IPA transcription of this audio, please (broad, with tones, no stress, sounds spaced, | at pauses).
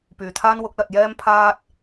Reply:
p yː˨ t̪ʰ aː˥ n w ʊ˨˥ k̚ l ɐ˧ t̚ j ɛː˥ m pʰ aː˥ t̚